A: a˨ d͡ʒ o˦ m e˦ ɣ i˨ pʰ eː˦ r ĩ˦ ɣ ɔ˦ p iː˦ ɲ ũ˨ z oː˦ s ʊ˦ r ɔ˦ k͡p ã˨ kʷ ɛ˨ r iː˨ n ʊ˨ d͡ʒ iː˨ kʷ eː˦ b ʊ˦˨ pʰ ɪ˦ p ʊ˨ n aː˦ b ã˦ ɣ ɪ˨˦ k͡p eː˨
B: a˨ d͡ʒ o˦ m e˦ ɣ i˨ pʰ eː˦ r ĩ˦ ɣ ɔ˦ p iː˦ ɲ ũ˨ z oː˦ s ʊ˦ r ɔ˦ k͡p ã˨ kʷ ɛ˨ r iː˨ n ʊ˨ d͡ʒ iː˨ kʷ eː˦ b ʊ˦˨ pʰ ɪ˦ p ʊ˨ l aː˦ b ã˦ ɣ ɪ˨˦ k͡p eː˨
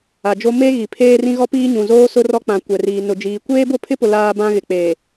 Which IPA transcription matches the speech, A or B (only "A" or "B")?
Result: B